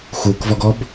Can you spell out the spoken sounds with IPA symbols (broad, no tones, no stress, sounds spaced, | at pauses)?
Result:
x u k v ɔ ɡ ɔ b